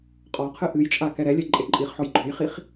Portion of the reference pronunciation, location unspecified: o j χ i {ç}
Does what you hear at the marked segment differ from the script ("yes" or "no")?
yes